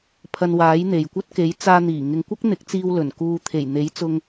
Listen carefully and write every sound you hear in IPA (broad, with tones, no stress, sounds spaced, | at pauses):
pʰ ɐ˧ n w aː˨˥ j n̪ e˨ j kʷ ɐ˥ t̚ k e˨˥ j t͡s aː˧ n̪ iː˨˩ ŋ ɪ˨ ŋ kʷ ɐ˥ k̚ n̪ ɪ˨˥ k̚ t͡s iː˧ w l ɵ˨˩ n k uː˧ t̪ʰ e˨˩ j n̪ e˨˥ j t͡s ʊ˧ ŋ